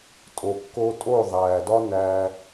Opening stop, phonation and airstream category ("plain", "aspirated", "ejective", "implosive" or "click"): ejective